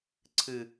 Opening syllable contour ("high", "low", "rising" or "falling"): low